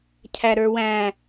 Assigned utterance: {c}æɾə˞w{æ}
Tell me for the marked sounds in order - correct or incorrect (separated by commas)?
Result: incorrect, incorrect